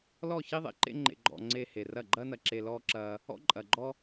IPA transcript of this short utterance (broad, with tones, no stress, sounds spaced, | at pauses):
l ɔ˦˨ ç i˧ ðˤ ḛ˨ ǃ ḛ˧ ŋ͡ǃ ḛ˨ ɡ͡ǃ ɔ̰˨ ŋ͡ǀ e˧ h e˨ r ɐ˦˨ ɡ͡ǃ ɐː˦ n ɐ˨ ǁ e˨ l ɔː˧ ǁ ɐː˧ | ɔ̰˦ ǃʼ ɐ˨ ɡ͡ǃ ɔ˦